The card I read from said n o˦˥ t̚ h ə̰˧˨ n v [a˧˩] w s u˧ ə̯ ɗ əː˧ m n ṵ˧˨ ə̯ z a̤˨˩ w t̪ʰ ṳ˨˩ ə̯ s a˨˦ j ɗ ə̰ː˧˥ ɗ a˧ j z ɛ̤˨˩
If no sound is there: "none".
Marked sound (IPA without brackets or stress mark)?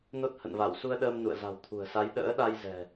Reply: a˧˩